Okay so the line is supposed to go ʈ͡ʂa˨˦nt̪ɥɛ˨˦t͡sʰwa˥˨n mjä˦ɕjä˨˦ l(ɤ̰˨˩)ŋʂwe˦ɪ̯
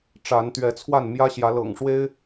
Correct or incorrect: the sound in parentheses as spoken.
correct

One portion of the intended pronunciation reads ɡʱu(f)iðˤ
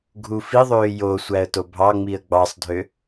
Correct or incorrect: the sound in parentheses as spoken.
correct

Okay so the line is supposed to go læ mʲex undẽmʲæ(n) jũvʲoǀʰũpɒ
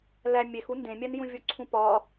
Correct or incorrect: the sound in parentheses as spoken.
correct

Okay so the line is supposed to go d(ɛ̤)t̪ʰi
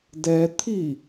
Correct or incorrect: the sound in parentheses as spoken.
incorrect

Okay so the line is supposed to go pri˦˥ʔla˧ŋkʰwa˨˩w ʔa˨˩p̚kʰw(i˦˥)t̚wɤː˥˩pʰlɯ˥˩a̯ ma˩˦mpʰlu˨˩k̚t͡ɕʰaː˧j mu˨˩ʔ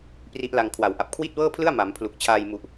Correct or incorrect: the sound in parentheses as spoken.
incorrect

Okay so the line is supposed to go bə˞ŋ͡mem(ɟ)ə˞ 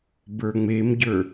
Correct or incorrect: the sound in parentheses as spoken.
correct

